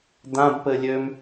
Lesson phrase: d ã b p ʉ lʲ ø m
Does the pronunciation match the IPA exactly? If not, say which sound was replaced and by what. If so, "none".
ʉ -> ɘ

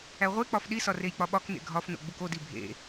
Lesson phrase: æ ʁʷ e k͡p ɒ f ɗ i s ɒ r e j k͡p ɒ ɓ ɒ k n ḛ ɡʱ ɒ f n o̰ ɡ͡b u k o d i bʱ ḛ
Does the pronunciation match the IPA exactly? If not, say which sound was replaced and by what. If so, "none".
none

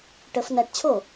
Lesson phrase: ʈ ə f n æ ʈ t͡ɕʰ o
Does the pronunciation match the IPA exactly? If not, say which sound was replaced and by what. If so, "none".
none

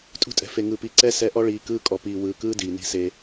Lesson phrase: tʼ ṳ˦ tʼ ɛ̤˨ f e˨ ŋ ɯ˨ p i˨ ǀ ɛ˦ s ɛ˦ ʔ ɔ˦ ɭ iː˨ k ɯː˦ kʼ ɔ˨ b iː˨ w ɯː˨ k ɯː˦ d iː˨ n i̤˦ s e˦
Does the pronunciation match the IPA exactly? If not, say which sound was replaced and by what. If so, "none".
b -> p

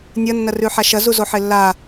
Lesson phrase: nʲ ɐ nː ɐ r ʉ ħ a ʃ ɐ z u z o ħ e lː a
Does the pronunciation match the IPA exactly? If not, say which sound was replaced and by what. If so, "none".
none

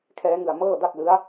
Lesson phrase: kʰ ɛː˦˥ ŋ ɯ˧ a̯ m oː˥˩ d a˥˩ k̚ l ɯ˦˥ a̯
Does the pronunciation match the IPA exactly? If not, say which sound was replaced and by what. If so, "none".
oː˥˩ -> ɤː˥˩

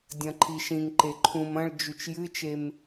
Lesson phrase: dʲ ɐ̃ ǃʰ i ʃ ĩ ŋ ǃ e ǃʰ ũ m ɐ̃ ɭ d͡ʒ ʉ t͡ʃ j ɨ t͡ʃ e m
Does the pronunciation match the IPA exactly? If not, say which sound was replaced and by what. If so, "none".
none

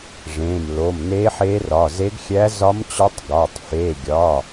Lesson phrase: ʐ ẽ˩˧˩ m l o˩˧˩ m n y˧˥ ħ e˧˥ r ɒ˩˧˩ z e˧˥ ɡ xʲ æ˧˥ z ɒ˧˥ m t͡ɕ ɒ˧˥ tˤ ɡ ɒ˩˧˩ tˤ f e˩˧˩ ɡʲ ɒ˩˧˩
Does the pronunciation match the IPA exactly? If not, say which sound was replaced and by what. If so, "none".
y˧˥ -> e˧˥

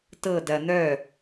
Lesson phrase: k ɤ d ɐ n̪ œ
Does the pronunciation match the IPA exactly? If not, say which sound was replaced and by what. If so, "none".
k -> t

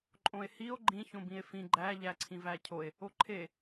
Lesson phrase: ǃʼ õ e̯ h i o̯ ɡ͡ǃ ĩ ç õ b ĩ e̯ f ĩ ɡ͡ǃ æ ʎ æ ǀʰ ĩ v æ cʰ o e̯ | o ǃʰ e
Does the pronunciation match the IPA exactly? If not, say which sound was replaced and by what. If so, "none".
none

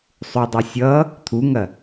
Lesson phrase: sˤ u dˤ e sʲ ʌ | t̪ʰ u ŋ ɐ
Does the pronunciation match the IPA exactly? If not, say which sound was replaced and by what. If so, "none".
none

